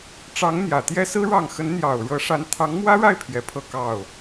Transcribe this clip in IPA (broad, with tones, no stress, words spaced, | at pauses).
ʈ͡ʂɑ˧˥ŋ n̪jä˨˩t̪jɛ˥sɹ̩˥ ɻɑ˥˩ŋ xə˧˥nn̪jɑ˨˩ʊ̯ɻɤ˧˥ʂa˧˥n t̪ʰɑ˧˥ŋmwä˥ɻa˥˩ɪ̯ pʰjɛ˧˥pʰɤ˥˧kɑ˥˩ʊ̯